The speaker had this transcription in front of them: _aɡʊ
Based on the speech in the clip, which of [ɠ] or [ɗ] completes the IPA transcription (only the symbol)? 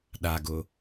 ɗ